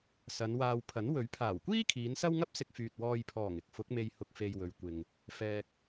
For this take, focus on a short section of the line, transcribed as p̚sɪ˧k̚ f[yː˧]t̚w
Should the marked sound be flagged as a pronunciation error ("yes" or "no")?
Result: yes